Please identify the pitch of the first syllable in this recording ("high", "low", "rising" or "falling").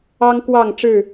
high